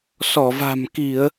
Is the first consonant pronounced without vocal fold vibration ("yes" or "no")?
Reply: yes